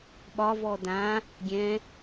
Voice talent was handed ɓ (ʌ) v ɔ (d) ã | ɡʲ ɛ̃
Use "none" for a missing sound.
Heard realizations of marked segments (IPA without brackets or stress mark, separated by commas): ɒ, d